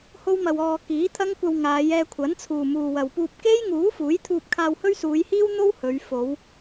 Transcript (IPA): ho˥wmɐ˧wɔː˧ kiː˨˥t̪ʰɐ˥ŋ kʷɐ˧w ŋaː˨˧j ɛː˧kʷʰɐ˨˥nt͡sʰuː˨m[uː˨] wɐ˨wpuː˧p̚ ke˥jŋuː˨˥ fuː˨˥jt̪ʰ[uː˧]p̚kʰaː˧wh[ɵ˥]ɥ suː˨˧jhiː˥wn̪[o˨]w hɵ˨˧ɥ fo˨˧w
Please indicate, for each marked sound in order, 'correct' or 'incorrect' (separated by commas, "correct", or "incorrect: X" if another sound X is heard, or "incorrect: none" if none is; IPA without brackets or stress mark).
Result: correct, correct, correct, incorrect: o˥